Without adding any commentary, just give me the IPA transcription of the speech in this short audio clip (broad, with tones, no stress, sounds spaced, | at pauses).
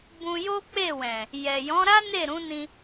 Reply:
b ũ˧ j o˦ k͡p e˦˨ w ɛ̃˨ | j ɛ˨ j ɔ̃˨˦ ɾ a˦ n e˦˨ ɾ ũ˨˦ n ĩ˧